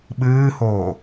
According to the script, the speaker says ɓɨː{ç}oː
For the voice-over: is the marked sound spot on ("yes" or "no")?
no